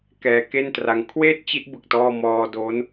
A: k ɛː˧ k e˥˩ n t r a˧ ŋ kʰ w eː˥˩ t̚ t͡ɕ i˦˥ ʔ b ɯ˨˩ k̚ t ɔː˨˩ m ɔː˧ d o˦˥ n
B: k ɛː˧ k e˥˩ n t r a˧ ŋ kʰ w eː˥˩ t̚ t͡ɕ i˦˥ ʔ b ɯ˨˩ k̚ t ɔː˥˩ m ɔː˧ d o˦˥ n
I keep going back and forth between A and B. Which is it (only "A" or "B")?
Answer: B